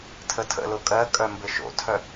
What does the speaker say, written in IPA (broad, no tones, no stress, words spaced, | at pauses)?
tʰətʰə̰lo kʼɜkʼœ mbɘʃo̰tʰœ